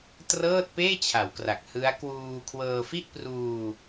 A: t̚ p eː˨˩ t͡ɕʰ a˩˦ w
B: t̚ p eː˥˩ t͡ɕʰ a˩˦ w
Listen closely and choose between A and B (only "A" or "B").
B